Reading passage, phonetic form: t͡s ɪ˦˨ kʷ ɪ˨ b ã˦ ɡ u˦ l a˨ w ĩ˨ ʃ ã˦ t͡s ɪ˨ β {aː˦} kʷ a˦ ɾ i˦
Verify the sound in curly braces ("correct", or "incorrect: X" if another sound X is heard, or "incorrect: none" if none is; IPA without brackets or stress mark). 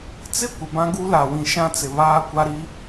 correct